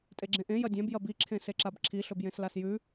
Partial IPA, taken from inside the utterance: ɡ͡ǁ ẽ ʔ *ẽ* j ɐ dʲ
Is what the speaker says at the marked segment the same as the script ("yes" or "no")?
yes